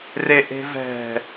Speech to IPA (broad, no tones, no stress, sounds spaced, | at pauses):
r e ʔ e̤ v ɛ̤